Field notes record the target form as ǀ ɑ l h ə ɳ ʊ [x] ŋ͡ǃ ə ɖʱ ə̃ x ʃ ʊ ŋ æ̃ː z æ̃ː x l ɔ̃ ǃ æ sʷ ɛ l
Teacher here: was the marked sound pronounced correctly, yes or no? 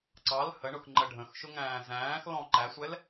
yes